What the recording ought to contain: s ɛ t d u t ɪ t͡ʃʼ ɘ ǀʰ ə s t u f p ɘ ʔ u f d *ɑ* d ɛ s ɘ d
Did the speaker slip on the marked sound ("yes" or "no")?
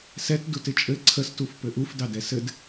no